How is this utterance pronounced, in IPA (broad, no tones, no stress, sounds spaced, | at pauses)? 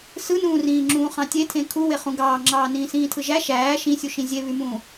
s ɯ n ũː r ĩː ŋ͡ǁ ũː χ ɑ̃ tʲ e tʰ ẽ kʰ u w e χ ũ ɡ ɑː ŋ͡ǁ ɑː n ĩː s ĩː tʰ ɯ ʒ æ ʃ æː ʃ ĩ sʲ u ʃ ĩ zʲ e β y m ũː